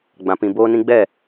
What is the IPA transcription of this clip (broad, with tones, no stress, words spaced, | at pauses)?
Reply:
ɡ͡bã˨pĩ˨ boː˧nĩ˧ɡ͡bɛ˦˨